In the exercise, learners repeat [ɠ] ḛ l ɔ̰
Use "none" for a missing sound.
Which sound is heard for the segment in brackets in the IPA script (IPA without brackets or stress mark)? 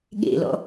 ɠ